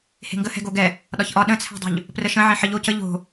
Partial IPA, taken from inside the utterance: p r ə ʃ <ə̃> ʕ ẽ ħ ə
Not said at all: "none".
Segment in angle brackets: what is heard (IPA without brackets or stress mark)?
ə̃